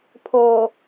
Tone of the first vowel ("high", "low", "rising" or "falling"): low